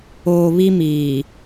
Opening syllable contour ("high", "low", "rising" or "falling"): low